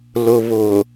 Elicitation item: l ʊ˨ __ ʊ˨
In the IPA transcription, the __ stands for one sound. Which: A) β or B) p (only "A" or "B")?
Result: A